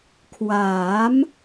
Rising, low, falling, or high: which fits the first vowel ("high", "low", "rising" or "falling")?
rising